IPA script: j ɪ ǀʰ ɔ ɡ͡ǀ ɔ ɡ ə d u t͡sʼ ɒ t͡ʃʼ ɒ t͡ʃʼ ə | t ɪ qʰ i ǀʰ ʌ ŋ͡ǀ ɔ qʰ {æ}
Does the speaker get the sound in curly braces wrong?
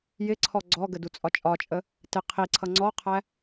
no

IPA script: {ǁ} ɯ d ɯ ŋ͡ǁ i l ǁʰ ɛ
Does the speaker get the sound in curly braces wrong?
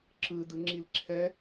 no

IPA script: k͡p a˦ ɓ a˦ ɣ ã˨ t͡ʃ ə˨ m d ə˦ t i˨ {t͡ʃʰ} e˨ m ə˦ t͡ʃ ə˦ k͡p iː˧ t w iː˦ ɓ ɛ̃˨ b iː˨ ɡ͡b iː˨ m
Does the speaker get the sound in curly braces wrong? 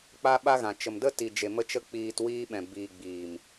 yes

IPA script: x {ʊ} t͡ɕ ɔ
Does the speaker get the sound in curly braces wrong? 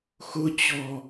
no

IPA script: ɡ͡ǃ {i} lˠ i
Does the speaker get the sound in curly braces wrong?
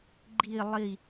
no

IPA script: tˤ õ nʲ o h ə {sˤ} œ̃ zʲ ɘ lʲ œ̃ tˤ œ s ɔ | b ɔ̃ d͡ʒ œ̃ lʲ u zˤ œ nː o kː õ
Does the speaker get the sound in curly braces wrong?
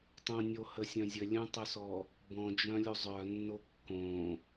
yes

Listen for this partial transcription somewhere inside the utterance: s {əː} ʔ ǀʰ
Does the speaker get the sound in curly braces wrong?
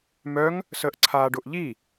no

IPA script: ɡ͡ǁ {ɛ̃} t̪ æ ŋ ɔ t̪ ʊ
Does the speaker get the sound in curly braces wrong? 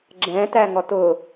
no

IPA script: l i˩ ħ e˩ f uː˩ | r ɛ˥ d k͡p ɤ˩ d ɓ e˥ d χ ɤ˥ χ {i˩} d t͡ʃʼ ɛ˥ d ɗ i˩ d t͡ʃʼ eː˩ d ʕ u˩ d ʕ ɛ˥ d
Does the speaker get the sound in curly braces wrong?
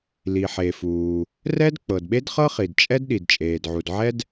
no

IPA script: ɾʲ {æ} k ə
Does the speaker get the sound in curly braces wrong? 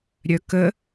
yes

